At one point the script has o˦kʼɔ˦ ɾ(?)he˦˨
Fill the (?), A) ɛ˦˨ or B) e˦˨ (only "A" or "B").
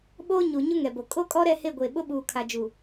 A